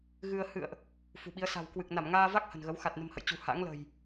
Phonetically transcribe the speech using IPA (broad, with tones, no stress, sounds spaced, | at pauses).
ɣ ɨ˧ ə̯ h ɨ̰˧˨ ə̯ ʔ | f ṳ˨˩ ɓ i˨˦ ə̯ s a̤˨˩ w k w ɨ˨˩ k̚ n a˧˩ m ŋ aː˧ v a˦˥ k̚ h ə̤˨˩ n ɣ ə˨˦ w x a˨˩ t̚ n ə̤˨˩ m h ə̰˧˨ j t͡ɕ ṳ˨˩ h a̰˧˥ ŋ l ə̤˨˩ j